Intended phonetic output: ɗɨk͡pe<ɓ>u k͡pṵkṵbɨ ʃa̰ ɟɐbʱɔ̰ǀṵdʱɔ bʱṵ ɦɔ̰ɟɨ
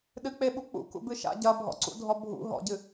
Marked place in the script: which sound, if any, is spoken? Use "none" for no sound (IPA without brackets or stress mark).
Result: ɓ